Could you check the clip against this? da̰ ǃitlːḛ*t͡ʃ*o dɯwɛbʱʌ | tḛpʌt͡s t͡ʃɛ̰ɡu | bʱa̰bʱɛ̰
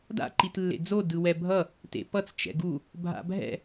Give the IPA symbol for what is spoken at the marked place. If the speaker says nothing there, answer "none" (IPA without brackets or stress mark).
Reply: d͡z